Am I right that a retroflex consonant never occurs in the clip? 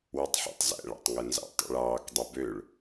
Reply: no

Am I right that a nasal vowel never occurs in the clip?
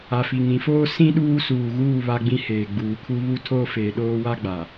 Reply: no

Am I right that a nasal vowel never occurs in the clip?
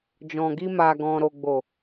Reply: no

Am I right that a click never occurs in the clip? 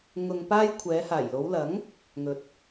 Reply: yes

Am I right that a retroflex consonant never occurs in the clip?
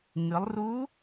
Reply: yes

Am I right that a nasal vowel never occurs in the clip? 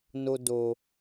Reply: yes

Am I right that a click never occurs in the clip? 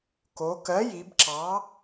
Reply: no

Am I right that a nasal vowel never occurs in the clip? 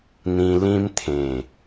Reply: no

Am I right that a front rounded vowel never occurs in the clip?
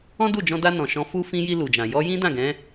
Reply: yes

